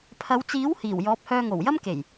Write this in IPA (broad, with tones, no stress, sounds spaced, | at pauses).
pʰ ɐ˨˧ w t͡s iː˨˥ w h iː˨˩ w j ɔː˨˥ p̚ h œː˧ ŋ o˨˩ w j ɐ˥ m k e˨˩ j